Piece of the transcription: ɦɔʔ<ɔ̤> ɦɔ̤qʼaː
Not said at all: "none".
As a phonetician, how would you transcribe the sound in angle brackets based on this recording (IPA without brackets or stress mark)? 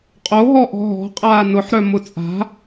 ɔ̤